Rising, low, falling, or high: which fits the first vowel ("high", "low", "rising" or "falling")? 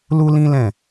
high